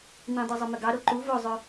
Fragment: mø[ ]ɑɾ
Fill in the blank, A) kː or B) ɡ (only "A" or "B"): B